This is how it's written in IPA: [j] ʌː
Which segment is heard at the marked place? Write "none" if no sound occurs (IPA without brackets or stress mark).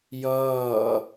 j